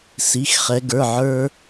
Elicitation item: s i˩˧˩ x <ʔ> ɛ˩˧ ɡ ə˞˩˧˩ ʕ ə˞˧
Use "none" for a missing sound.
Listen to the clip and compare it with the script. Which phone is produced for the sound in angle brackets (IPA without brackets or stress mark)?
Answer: χ